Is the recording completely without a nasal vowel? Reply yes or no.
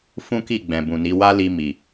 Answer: no